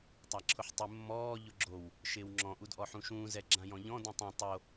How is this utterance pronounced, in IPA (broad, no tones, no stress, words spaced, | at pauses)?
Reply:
tˤaǁʰʊħtˤɪ mːɔː ʎʊɡ͡ǁow | ʃɪːwŋ͡ǁɔ̃ ʔudʔɔħũʃũː zɛɡ͡ǁãjɔ̃ʎɔ̃ dũtˤũ tˤo